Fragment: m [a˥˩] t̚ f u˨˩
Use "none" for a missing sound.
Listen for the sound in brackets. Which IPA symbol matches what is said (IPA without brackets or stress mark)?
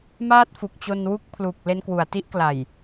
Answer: aː˥˩